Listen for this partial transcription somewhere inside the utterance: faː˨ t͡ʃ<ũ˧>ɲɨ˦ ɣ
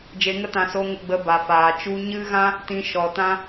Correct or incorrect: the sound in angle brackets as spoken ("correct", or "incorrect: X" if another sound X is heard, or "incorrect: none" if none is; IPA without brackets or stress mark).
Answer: incorrect: u˧